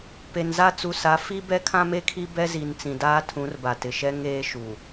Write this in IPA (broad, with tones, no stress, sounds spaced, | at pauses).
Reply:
p e˨ n z a˦ t͡s u˨ s a˨˦ f i˦ b ɛ˦ kʰ ã˦ m e˦ kʰ i˦ b ɛ˦ z i˨ n t͡s ĩ˨ d aː˦ tʰ ũ˨˦ r b a˨ t ɪ˨ ʃ ɛ˦ ŋ eː˦ ʃ u˨